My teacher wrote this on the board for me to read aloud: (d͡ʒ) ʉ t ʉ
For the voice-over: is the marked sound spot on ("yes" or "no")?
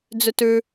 no